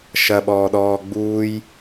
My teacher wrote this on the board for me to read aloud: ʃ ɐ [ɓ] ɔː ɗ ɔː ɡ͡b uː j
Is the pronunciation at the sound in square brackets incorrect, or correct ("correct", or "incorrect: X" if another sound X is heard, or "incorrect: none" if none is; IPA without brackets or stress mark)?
correct